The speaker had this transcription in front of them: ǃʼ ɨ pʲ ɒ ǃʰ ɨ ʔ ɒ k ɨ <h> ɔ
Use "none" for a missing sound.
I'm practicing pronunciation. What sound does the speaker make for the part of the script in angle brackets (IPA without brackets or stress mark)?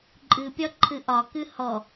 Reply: h